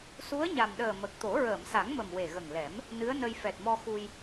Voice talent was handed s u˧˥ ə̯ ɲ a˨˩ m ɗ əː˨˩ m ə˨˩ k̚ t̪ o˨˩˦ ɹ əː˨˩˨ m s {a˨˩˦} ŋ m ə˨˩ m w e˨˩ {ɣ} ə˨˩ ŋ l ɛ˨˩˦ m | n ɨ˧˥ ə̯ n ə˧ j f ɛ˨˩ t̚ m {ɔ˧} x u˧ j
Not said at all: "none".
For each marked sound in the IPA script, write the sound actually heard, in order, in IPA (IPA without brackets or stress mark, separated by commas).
a˨˩˦, ɣ, ɔ˧